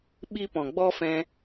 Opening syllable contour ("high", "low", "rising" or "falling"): high